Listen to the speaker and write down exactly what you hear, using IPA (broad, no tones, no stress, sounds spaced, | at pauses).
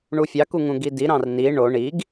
ɳ u fʲ ɑ k u ŋ ũ ɡ i d i ɾ ɑ̃ r n i ɳ o ɳ i ɡ